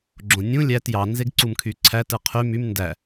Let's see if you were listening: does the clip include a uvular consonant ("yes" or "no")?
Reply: yes